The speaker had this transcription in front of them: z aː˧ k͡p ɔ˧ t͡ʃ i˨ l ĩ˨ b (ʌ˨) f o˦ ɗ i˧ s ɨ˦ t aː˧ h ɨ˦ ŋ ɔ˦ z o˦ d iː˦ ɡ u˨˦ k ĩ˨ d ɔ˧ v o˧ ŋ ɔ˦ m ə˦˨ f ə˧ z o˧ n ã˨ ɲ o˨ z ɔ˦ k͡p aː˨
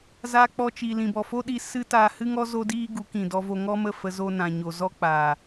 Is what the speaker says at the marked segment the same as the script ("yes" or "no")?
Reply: no